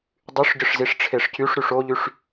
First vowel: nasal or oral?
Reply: oral